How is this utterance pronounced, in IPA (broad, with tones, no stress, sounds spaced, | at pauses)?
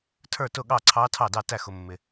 tʰ ə˞˥˩ t ʊ˥˩ ɠ ɑ˥˩ ǀʰ ɑ˧˥ tʰ ɑ˥˩ d ɑ˥˩ t æ˥˩ x ʊ˨ mː ɪ˨